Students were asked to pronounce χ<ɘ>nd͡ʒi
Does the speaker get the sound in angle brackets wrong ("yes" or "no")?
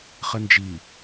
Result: no